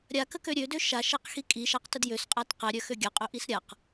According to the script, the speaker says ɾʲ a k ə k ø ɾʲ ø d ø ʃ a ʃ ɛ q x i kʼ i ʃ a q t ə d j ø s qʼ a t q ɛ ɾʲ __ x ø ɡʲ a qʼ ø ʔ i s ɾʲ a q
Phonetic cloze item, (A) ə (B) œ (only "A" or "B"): B